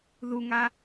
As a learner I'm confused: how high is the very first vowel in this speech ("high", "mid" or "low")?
high